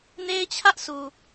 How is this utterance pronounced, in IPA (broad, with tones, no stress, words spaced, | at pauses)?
ne˦ɪ̯t͡ɕʰä˦ʔ sʰu˨